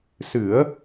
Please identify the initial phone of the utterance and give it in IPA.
s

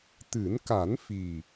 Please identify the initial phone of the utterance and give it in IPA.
t̪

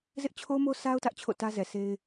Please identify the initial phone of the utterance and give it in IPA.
z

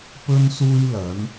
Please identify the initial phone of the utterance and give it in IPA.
p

